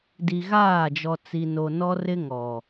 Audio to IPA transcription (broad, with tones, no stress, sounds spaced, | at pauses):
d i˨ ɣ aː˦˨ d͡ʒ ɔ˨ t͡s i˨ n o˨ n ɔ˦ r ɪ˦ ŋ ɔ˨